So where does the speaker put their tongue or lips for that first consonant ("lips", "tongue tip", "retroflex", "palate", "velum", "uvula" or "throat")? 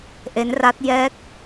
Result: throat